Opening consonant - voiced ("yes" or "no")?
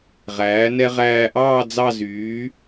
yes